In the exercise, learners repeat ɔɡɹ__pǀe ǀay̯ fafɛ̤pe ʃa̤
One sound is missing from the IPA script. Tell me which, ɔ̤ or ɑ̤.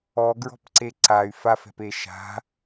ɔ̤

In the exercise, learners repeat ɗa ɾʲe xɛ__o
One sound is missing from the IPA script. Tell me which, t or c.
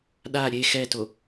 t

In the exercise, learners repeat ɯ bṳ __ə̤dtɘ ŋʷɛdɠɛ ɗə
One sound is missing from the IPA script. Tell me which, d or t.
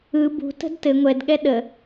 t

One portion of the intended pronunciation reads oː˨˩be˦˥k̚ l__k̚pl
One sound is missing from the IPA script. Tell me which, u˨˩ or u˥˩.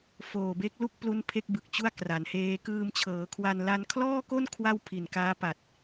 u˥˩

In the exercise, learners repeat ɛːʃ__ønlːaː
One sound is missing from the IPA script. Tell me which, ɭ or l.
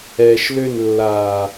l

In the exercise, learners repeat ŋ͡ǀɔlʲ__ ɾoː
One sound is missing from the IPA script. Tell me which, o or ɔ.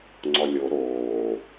o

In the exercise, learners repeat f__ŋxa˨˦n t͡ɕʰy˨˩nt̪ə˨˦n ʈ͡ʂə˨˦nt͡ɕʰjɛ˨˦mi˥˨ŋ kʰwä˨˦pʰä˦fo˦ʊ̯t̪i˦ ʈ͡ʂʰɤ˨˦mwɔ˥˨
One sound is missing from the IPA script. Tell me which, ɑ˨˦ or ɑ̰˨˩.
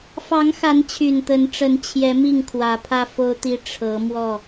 ɑ˨˦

